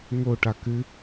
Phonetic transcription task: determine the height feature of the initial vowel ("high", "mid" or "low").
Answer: mid